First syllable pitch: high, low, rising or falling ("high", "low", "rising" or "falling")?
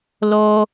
high